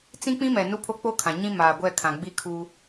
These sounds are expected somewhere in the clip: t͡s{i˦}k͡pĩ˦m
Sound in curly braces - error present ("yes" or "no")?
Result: yes